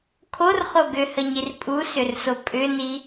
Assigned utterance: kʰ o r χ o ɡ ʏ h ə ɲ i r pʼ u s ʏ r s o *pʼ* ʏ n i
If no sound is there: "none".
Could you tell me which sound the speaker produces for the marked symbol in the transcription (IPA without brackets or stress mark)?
pʼ